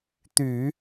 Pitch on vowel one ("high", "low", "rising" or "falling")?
low